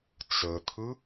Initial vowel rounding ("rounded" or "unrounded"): unrounded